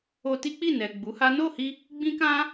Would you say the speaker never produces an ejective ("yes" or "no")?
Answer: yes